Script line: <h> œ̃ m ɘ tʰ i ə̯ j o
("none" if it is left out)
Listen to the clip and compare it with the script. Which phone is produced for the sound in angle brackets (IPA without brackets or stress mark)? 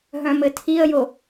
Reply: ɦ